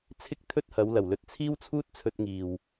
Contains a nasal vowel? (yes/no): no